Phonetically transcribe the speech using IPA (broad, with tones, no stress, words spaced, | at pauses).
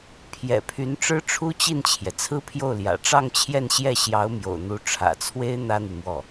pʰjɛ̰˨˩pʰy˧˥nʈ͡ʂɻ̩˥ ʈ͡ʂʰu˥t͡ɕi˥˩nt͡ɕʰjɛ˩ t͡sʰɹ̩˥pʰjo˥˩ʊ̯ljä̰˨˩ ʈ͡ʂɑ˥˧ŋt͡ɕʰjɛ˥˧nɕjɛ˥˩ ɕjɑ˧˥ʊ̯mjo̰˨˩ʊ̯n̪u˧˥ ʈ͡ʂʰä̰˨˩t͡sʰwe˥ɪ̯ n̪ä˥n̪y˨mwɔ˥˩